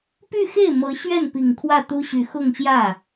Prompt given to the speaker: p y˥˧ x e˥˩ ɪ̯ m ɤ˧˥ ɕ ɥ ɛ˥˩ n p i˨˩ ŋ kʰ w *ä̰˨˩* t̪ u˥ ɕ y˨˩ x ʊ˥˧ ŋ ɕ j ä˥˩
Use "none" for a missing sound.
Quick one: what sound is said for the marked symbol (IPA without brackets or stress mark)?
ä˥˩